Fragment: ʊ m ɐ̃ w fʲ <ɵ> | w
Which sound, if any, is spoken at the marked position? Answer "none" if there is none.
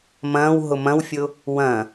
ʊ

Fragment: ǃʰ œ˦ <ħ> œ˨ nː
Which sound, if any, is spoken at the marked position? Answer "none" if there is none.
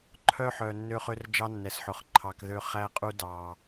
ħ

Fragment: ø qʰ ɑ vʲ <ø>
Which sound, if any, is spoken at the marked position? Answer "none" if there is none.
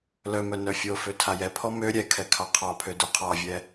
ɛ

